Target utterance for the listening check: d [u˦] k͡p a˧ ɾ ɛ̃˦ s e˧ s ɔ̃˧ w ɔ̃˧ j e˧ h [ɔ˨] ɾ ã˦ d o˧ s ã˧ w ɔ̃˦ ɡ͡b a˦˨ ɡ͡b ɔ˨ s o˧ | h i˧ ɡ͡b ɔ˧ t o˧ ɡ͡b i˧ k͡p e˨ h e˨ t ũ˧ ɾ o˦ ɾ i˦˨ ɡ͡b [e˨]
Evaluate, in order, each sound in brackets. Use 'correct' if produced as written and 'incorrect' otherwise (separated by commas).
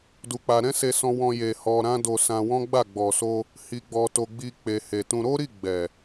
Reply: incorrect, incorrect, incorrect